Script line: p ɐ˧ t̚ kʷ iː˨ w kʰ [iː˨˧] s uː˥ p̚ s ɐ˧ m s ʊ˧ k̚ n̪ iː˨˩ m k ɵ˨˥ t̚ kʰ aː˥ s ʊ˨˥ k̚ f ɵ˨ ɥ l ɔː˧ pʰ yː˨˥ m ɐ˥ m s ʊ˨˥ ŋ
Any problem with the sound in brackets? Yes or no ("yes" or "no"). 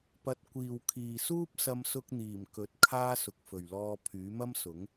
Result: yes